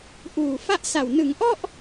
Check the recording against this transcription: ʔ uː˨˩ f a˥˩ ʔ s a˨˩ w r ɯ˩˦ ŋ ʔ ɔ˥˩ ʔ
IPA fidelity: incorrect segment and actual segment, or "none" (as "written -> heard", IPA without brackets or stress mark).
r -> n